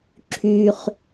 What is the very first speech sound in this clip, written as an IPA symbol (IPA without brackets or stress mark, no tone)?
ǁʰ